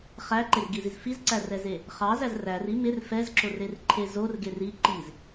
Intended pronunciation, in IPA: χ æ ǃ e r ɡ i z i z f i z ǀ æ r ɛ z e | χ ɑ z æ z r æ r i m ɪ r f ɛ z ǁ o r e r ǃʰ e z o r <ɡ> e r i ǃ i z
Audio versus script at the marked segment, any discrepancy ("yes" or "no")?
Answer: no